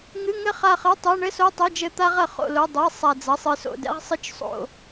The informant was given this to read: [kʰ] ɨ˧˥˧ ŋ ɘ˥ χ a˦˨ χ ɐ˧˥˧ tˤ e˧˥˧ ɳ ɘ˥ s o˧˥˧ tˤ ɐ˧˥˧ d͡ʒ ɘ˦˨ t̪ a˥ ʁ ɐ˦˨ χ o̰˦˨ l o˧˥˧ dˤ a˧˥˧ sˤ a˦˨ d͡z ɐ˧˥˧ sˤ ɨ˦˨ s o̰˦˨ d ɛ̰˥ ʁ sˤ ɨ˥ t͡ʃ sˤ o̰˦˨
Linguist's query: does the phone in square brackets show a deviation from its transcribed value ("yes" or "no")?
yes